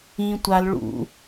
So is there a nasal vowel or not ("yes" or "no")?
yes